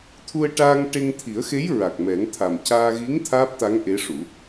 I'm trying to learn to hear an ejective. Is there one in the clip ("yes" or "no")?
no